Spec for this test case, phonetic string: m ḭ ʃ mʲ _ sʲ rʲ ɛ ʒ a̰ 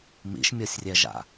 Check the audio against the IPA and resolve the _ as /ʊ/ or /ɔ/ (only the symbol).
ɔ